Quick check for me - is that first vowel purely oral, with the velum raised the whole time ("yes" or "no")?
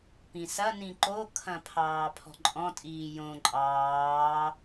no